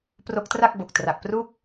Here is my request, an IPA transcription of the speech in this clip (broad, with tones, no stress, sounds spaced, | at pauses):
p r o˦˥ k̚ t r a˥˩ k̚ b o˨˩ k̚ t r a˨˩ k̚ p r u˥˩ k̚